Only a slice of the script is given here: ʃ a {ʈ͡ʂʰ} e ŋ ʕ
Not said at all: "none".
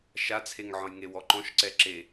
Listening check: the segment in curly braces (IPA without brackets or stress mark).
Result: t͡sʰ